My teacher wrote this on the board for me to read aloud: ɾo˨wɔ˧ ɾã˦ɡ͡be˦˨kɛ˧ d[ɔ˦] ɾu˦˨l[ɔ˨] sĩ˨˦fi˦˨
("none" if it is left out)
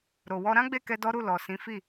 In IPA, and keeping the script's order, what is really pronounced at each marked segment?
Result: ɔ˦, ɔ˨

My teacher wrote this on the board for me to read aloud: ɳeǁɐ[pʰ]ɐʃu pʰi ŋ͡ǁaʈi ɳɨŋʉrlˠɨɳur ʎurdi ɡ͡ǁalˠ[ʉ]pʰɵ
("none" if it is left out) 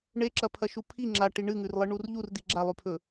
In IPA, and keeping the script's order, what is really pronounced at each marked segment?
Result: pʰ, ʉ

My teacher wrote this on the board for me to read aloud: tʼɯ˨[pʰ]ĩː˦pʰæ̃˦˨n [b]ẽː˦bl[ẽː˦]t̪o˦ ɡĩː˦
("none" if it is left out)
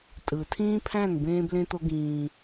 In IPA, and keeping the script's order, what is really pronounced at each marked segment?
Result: tʰ, b, ẽ˦

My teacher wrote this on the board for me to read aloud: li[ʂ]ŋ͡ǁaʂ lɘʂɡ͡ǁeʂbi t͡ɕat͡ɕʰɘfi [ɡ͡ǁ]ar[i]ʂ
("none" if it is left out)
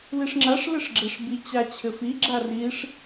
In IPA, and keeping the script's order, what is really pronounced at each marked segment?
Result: ʂ, ɡ͡ǁ, i

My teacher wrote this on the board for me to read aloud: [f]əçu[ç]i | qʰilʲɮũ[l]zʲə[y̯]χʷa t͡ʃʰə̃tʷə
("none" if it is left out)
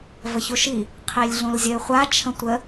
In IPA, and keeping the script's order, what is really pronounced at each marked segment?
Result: v, ʃ, l, y̯

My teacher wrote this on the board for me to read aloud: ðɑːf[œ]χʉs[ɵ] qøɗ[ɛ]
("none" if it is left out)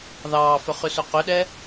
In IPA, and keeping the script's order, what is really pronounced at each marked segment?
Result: œ, ɵ, ɛ

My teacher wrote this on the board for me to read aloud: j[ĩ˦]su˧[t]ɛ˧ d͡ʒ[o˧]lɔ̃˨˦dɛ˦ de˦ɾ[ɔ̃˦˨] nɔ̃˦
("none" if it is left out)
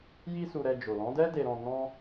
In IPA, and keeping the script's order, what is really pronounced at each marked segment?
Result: i˦, ɾ, o˨, ɔ̃˦

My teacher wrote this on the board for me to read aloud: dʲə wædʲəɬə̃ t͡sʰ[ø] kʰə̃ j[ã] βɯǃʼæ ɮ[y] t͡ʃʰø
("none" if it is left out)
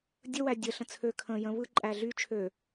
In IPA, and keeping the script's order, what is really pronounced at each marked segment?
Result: ø, ə̃, y

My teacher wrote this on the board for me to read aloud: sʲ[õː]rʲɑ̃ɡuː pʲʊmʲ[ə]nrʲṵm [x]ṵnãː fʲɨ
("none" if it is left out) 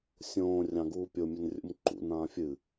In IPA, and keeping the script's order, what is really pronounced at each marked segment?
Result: õː, ə, ǃ

